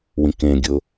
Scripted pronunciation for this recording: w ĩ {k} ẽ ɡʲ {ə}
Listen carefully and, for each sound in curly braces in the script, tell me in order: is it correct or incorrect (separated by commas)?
correct, incorrect